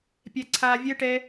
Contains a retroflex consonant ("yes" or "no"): yes